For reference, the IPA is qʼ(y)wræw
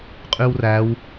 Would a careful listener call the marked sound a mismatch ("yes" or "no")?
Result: no